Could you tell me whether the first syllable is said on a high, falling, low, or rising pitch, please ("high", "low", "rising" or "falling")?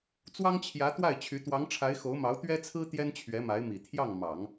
high